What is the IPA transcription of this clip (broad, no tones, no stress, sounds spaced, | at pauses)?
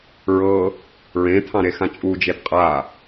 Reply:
ɹ ɤ | ɹ ẽ t̪ʰ ɑ̃ ɾ e x ã t͡ʃʼ u d͡ʒ e d qʼ a